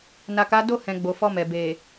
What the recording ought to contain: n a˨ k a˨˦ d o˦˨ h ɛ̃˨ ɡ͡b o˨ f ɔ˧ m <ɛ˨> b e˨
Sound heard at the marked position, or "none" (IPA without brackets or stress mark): ɛ˨